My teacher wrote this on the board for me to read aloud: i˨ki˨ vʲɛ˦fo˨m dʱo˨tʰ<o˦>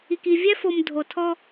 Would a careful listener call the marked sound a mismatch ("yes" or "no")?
yes